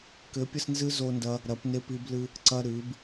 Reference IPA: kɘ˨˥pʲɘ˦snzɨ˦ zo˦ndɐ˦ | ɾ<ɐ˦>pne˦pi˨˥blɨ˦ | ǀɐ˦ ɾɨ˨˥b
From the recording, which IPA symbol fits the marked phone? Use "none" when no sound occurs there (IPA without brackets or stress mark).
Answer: ɐ˨˥